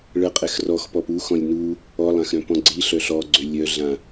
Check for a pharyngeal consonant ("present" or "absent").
absent